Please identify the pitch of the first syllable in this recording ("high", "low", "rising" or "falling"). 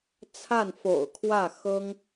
falling